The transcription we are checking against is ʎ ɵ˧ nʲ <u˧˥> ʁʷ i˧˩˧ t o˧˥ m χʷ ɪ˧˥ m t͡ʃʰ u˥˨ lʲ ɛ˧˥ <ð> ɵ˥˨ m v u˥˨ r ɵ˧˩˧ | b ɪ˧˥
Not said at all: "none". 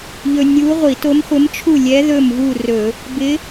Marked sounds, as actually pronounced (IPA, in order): u˧˥, ð

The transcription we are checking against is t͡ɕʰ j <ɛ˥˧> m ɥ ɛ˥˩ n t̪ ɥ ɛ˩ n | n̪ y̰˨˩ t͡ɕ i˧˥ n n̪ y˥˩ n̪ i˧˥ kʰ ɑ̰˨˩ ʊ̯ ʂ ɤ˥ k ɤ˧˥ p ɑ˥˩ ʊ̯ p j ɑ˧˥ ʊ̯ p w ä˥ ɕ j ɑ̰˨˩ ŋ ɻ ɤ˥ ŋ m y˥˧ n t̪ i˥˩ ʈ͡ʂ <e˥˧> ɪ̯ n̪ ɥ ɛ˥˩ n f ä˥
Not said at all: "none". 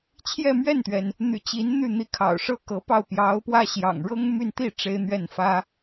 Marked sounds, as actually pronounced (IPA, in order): ɛ˥˧, e˥

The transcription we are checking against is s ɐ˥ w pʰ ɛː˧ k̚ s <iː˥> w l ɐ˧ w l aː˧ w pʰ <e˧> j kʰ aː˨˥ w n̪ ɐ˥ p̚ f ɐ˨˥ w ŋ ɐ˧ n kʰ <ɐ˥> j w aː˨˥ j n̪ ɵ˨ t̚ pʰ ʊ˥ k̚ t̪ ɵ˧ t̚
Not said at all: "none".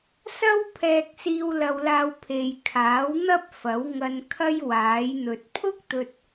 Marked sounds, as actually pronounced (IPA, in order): iː˧, e˨, ɐ˥

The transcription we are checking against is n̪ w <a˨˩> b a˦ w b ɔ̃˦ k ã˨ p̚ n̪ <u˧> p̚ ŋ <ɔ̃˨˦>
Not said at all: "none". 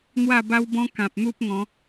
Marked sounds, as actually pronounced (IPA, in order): a˥˧, u˦, ɔ̃˨˦

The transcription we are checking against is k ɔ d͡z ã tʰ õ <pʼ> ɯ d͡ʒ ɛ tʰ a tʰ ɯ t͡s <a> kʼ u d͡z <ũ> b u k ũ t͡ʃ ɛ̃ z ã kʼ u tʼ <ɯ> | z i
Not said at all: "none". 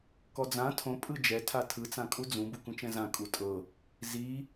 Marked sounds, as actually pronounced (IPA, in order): pʼ, ã, ũ, ɤ

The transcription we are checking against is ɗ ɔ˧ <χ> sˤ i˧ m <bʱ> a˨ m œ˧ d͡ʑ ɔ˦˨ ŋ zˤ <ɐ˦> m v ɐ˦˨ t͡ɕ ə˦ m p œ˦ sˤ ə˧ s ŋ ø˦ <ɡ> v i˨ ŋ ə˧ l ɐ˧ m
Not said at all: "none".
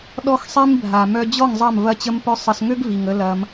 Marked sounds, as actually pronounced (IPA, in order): x, bʱ, ɐ˦˨, ɡ

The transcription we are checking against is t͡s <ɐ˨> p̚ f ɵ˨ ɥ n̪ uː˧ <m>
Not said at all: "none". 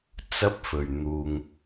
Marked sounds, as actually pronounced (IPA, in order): ɐ˥, ŋ

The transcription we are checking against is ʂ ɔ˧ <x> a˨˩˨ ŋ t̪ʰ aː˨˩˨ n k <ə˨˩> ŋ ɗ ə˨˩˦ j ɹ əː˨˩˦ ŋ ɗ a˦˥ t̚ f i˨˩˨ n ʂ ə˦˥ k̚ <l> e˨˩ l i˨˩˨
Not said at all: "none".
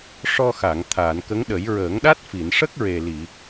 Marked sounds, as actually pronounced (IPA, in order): x, ə˧˥, ɹ

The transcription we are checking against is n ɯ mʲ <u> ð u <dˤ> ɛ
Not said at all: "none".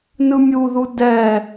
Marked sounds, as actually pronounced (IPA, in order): u, d

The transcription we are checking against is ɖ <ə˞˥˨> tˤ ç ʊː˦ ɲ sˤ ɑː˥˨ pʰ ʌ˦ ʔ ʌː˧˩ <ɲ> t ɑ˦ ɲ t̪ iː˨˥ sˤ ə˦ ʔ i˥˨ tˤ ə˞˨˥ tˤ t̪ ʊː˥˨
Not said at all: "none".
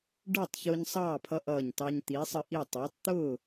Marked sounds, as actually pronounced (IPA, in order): ə˞˥˨, ɲ

